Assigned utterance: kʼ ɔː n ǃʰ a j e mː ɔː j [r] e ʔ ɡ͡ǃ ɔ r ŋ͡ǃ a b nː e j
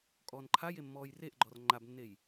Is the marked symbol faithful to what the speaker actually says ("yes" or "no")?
yes